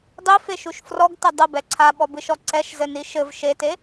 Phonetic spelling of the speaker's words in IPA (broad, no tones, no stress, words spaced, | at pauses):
dˤifeʃuʃ frɔɡtɘ dˤɘbɛ ǀʰaɓɔbɨʃɔ ǀɛʃzɘni ʃɘv ʃete